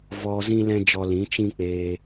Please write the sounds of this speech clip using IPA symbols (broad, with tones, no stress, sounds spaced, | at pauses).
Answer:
v ɔ˧ z ĩ˦ l ɛ̃˦ d͡ʒ ɔ˧ l ĩ˨˦ t͡ʃ ĩ˦ k͡p eː˧